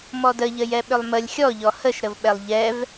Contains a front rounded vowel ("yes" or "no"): yes